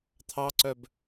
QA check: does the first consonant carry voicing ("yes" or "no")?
no